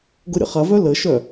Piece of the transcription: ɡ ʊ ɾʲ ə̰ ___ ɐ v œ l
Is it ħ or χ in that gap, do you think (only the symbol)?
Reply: χ